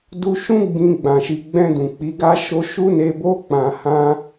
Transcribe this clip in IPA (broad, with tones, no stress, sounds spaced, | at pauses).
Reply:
d u˧ ʃ ũ˦ ɡ͡b ĩ˧ ɡ͡b ã˨ ʃ i˨ ɡ͡b ɛ̃˧ d ũ˨ k͡p i˨˦ ɡ a˦ ʃ o˦ ʃ u˦ n e˧ b o˦ k͡p ã˧ h ã˦